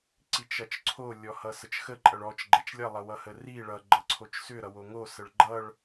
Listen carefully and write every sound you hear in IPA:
ǀit͡ʃʌt͡ʃǀʰo lʲɔhʌsət͡ʃxə ǃʼʌɭɔt͡ʃ ɡ͡ǃɛt͡ʃlʲʌ lˠʌwʌhəri ɭʌ ɡ͡ǃʌǀʰot͡ʃsʏ ɾʌwoŋo səɭɡ͡ǃʌɭ

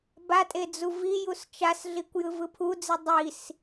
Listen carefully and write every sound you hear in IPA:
batʼe d͡zuvijus t͡ʃasɮikʷ jɯvɯpʰud͡zi dˤis

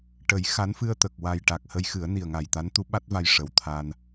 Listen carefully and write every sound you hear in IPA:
ʈə˨˩˦jxa˧˥n fɨ˧ə̯t̪ə˨˩k̚ wa˨˩j ʈa˨˩k̚ hə˧jxɨ˨˩˦ə̯ni˨˩ə̯ ŋa˨˩jt̪a˧˥nt̪u˧˥ ɓa˦˥t̚va˧j ʂə˨˩wt̪ʰa˧n

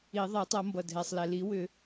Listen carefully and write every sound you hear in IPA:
i˨˩˦ ðˤɛ˨˩˦tˤʌ˨˩˦mbʌ˩ dʱɛ˩sˤlɛ˩li˨˩˦ wʏ˨˩˦

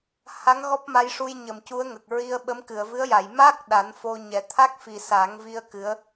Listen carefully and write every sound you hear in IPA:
ha˧˥ŋ ɣɔ˦˥p̚ma˧jʂu˧j ɲə˨˩mcu˧˥ə̯ ŋə˨˩k̚ɹi˧ə̯ɓə˧˥m kɨ˨˩˨ə̯vɨ˧˥ə̯ja˨˩˨j ma˦˥k̚ ɗa˨˩˦nfo˧ɲɛ˨˩˦ t̪ʰa˦˥k̚fi˨˩ sa˨˩˦ŋvi˧ə̯ kɨ˧˥ə̯

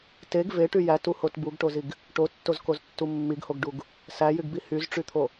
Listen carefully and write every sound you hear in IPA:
teɡ veʈy jætuhot buɡʈoziɡ | ʈotːozkoztːu mːiɡhoɡɖuɡ | sæjyɡbi hyzʈ͡ʂyt̪ʰo

